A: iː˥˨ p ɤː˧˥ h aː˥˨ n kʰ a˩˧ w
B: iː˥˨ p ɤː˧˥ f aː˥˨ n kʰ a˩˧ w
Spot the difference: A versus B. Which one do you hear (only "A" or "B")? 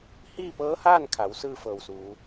A